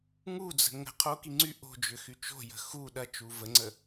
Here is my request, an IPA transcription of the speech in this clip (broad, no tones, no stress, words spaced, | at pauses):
ŋud͡zə̤ ŋə̤ qʰoki ŋ͡ǀy ʔo̤ d͡ʒʏxyt͡ʃo̤jə̤ xu ɗɐt͡ʃu vəŋ͡ǀə